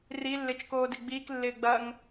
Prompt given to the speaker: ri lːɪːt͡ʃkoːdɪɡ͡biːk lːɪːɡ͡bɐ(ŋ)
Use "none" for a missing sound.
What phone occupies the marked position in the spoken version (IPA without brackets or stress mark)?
ŋ